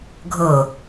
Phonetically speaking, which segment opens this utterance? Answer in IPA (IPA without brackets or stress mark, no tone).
ɡʱ